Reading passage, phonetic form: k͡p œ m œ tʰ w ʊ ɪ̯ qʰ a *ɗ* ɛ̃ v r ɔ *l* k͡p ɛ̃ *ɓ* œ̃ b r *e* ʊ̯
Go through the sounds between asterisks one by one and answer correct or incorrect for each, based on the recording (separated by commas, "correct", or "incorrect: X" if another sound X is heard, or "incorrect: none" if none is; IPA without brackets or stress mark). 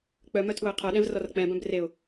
correct, incorrect: r, incorrect: b, correct